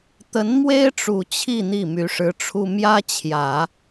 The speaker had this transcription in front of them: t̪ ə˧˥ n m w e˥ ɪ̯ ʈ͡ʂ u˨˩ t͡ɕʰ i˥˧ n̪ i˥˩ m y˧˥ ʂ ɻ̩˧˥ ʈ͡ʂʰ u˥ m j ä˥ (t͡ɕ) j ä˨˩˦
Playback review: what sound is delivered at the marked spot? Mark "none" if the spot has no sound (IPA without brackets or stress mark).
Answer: t͡ɕʰ